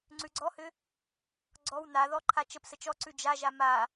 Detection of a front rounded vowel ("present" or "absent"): present